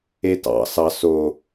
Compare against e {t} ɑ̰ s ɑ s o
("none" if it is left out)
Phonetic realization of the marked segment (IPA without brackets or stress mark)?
t